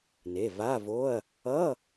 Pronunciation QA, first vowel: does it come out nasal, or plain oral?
oral